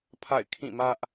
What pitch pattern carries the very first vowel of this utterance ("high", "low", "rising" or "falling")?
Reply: falling